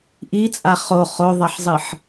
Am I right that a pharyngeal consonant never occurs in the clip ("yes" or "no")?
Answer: no